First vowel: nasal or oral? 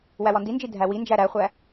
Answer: oral